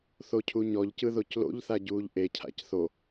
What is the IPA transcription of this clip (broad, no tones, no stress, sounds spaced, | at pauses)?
θ o cʰ u ɲ ɔ ʎ c ɯ ð o c l o̰ ʎ θ a ɟ uː ʎ ʔ e cʰ a̰ c θ o